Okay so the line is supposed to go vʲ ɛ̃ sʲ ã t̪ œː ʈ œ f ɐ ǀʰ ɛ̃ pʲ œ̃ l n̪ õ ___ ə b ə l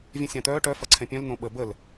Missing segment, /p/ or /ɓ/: ɓ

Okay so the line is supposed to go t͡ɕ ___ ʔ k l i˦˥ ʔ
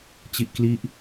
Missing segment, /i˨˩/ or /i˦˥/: i˦˥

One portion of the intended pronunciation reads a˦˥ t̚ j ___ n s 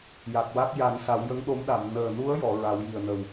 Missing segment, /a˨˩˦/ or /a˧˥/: a˨˩˦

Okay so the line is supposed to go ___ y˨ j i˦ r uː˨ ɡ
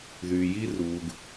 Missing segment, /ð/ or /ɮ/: ð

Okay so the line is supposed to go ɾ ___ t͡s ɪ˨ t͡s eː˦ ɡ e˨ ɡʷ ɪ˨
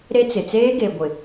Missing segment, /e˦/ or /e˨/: e˦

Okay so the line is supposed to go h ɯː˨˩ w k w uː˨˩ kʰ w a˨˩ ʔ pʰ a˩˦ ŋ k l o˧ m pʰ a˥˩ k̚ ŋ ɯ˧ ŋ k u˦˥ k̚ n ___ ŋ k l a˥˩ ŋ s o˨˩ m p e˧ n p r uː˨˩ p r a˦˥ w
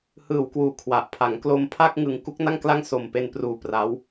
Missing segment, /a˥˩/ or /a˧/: a˥˩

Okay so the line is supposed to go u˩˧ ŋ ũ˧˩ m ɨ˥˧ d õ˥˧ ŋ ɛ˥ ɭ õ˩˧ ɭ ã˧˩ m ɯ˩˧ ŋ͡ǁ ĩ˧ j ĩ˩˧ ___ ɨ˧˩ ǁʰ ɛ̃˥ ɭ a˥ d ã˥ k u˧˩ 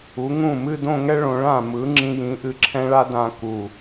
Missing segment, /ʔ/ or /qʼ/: ʔ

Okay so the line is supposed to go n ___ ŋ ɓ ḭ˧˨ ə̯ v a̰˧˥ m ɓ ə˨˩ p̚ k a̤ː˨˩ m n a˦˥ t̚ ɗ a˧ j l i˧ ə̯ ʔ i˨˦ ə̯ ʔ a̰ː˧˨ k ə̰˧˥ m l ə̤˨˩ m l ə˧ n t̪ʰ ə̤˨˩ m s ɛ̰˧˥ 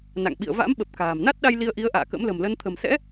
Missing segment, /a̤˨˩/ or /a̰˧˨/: a̰˧˨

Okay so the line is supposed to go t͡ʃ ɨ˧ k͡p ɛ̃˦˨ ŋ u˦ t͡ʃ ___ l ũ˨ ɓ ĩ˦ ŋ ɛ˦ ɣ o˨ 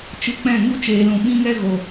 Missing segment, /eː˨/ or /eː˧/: eː˨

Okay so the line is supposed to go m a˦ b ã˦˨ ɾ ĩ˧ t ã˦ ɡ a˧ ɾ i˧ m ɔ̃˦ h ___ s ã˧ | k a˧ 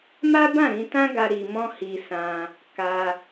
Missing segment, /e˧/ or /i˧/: i˧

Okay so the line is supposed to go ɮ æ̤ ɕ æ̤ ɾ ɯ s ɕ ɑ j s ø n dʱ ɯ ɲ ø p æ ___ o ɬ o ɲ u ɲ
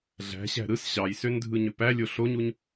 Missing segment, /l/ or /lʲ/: lʲ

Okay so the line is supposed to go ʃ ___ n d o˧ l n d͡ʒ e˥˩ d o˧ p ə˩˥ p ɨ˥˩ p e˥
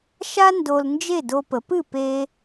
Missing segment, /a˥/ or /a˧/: a˥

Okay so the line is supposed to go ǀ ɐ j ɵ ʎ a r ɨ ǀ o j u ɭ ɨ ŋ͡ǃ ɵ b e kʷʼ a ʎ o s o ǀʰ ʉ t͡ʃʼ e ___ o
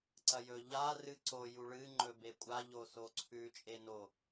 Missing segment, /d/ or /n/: n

